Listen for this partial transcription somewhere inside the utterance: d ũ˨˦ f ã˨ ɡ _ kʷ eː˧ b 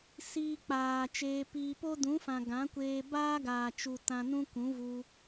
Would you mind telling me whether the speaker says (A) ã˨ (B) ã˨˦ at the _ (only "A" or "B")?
B